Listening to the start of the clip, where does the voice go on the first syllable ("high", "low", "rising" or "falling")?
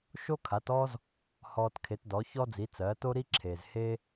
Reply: high